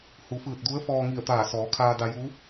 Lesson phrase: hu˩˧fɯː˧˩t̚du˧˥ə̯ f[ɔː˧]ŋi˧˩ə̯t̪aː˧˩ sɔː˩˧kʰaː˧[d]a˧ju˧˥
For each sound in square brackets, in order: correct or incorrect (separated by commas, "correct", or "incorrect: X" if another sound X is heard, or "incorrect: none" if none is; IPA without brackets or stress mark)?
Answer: correct, correct